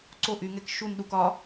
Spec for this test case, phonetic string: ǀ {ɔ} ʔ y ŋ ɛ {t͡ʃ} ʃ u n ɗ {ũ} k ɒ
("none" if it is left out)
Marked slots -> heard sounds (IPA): o, k, u

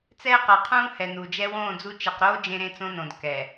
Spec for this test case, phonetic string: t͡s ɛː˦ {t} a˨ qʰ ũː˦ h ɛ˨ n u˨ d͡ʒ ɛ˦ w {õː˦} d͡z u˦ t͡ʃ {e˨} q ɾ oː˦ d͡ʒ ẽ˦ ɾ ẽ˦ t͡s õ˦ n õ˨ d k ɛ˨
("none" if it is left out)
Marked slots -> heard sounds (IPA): q, õː˦˨, e˨

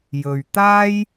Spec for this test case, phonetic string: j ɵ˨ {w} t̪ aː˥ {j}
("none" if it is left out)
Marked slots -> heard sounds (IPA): ɥ, j

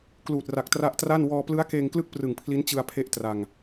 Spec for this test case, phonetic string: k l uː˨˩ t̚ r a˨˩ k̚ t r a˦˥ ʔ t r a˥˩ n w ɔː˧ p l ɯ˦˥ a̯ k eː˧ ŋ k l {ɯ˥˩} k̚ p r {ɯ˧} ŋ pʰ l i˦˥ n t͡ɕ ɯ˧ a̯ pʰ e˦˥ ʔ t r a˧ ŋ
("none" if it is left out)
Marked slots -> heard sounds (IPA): ɯ˥˩, ɯ˨˩

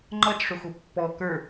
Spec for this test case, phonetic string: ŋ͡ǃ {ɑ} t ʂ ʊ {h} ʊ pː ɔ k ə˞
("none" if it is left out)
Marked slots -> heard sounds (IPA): ʌ, x

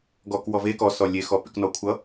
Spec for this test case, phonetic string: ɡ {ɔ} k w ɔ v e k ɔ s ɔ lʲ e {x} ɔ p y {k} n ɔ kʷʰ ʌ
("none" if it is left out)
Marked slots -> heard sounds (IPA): ɔ, x, k

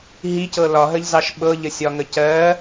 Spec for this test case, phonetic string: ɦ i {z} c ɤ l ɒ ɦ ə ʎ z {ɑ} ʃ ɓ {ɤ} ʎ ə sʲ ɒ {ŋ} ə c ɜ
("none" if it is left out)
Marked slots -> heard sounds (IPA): none, ɑ, ɤ, ŋ

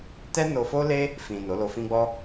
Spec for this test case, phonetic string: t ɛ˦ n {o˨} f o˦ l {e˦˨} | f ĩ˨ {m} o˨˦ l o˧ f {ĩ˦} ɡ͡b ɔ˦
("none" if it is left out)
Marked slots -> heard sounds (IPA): o˧, e˦, n, ĩ˦

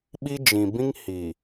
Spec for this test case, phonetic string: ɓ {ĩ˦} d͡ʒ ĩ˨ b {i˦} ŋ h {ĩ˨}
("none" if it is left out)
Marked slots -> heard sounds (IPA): i˦, ĩ˦, i˨

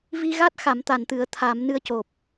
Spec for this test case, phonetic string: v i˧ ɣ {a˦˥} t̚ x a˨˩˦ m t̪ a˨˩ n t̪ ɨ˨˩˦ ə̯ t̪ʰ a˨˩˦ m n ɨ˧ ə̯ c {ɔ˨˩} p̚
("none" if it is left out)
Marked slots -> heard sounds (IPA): a˦˥, o˨˩

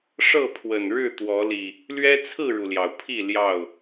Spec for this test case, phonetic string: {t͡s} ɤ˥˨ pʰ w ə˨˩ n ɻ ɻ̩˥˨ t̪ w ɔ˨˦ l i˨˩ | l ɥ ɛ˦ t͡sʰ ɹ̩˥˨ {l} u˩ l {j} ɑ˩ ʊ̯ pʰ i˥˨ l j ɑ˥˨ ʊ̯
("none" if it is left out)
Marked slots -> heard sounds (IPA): ʂ, ɻ, j

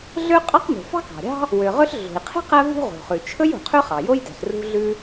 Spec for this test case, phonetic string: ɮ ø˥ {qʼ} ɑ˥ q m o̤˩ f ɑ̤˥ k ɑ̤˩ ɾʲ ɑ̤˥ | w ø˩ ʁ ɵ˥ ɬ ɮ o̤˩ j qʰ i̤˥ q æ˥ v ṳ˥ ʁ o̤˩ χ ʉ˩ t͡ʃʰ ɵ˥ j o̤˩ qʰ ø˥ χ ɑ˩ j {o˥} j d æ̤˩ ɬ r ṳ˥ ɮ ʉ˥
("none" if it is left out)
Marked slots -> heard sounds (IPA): qʼ, o˥

